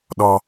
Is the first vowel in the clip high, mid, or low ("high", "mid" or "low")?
mid